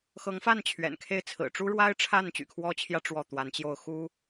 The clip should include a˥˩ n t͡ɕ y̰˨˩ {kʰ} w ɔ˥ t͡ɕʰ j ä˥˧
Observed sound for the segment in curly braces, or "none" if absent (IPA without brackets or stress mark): kʰ